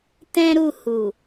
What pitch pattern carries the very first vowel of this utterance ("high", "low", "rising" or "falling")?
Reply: high